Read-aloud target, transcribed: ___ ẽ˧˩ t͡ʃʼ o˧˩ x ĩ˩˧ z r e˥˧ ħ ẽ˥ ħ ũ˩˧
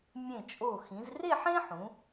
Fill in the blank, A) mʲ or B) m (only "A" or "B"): A